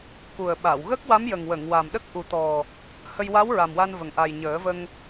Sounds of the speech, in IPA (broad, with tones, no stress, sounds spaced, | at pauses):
k u˨˩ ə̯ ɓ a˨˩˨ w ɣ ə˦˥ k̚ w a˧˥ m j ə˨˩ ŋ w ə˨˩˨ ŋ w a˨˩ m ɗ ə˦˥ k̚ ʔ u˨˩˦ t̪ ɔ˨˩ | h ə˧ j w a˧˥ w ɹ a˨˩ m w a˧ n v ə˨˩ ŋ ʔ a˨˩ j ɲ əː˨˩˦ v ə˧ ŋ